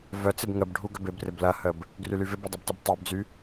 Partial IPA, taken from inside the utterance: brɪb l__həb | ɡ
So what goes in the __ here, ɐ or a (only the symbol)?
ɐ